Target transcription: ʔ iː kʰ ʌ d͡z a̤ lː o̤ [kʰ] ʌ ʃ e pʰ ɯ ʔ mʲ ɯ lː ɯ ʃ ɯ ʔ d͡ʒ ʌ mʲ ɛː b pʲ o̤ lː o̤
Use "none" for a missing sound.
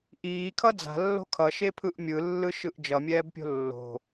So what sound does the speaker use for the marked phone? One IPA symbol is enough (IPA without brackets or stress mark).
kʰ